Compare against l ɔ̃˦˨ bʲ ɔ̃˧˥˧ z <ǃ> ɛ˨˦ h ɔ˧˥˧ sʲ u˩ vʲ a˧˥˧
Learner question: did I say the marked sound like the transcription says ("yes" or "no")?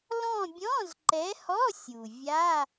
yes